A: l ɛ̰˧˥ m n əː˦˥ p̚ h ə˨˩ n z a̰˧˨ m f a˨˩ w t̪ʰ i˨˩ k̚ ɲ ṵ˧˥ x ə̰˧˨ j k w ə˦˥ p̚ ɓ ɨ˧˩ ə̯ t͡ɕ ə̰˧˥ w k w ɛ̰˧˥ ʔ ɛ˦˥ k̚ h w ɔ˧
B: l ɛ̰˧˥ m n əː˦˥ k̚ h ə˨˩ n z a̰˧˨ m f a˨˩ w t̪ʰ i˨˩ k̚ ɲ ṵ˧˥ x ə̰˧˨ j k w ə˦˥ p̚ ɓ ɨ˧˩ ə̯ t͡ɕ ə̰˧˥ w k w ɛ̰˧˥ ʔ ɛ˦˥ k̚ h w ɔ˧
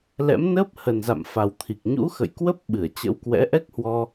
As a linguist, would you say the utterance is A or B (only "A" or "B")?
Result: A